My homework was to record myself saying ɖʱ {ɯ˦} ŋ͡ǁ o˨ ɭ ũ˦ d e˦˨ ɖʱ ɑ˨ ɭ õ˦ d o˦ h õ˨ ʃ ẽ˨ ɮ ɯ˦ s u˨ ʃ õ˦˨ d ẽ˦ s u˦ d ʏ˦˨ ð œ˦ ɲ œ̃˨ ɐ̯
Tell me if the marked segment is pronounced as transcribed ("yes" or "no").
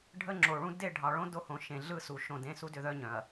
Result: no